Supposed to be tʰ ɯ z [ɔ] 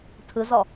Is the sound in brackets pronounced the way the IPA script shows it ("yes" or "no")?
yes